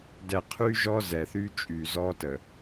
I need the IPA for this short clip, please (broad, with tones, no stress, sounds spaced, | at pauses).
d ɛ˨ qʰ y˦ ʒ ɔ˦ z ɛ˨ θ y˦ t͡ʃʼ y˨ z ɔ˦ t ə˨